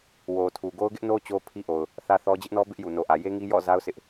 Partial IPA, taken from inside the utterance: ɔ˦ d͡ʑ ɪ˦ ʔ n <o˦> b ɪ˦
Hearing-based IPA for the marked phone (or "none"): ɔ˦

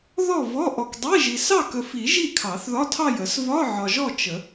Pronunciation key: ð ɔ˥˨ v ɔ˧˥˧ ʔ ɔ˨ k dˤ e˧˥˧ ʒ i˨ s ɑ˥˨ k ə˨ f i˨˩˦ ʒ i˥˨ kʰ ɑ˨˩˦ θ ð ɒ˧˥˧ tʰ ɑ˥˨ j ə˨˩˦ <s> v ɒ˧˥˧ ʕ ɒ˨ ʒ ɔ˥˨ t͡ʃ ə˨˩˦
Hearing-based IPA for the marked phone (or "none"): s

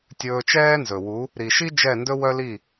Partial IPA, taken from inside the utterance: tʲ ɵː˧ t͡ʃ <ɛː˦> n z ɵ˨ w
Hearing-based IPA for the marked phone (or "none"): ɛː˦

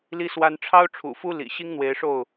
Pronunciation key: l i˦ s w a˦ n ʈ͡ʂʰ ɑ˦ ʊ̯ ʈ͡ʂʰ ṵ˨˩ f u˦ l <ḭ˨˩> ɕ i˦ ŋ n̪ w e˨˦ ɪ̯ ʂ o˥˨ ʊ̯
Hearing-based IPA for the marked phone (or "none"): ḭ˨˩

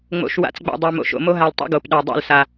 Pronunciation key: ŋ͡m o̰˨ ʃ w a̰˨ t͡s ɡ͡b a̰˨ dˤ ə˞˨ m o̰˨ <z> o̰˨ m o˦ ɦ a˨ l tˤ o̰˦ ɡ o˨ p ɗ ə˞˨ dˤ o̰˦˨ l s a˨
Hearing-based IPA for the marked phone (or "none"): ʃ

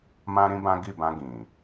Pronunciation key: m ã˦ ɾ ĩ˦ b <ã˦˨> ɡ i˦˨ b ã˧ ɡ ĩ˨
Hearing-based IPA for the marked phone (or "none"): ã˦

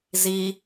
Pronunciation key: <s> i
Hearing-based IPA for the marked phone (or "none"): z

